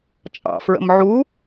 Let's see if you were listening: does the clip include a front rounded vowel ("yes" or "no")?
no